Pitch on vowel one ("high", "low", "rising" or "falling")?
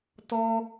high